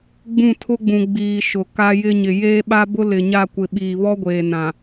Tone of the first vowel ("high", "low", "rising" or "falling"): falling